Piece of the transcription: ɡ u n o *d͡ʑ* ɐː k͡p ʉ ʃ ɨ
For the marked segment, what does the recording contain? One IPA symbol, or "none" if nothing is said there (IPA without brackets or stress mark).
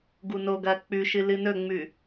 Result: ɡ